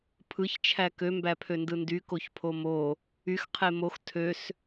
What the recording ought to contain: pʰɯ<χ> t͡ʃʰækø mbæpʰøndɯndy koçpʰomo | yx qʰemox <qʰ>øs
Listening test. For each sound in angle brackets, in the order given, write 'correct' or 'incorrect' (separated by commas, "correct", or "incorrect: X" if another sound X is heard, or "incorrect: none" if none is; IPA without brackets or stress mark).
incorrect: ç, incorrect: tʰ